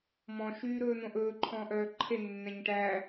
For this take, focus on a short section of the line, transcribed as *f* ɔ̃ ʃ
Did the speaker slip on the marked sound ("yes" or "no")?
yes